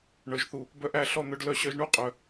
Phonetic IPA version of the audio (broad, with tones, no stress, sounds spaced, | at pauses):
ɳ œ˨ ʒ θ u˨ | b œ˧ ʔ æ˧ ɬ ɔ˦˨ n̪ œ˧ ɖ l œ˧ ɕ œ˧ ʒ ɳ u˦ qʼ œ˨